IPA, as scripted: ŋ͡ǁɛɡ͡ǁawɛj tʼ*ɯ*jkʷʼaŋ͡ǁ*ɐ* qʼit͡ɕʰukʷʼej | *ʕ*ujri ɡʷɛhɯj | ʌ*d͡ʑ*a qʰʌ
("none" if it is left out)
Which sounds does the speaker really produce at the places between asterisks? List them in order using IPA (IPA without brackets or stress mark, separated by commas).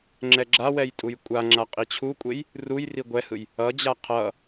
u, a, r, d͡ʑ